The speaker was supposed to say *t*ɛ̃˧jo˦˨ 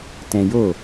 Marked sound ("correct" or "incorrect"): correct